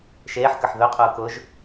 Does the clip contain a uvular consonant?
yes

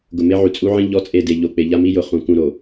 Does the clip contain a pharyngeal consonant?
yes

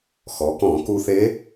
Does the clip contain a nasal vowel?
yes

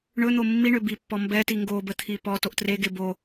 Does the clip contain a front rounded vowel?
yes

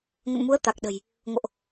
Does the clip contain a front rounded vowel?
no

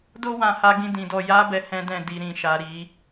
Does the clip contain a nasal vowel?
yes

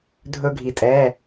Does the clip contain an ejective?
yes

